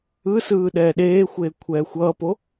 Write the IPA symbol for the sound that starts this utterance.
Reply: ɯ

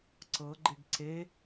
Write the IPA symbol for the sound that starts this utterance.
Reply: ǀ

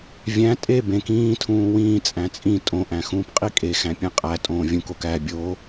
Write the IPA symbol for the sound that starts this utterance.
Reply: vʲ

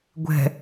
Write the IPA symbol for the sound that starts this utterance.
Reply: ɡʷ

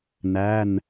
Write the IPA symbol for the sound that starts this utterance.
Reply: n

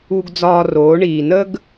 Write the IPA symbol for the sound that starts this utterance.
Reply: u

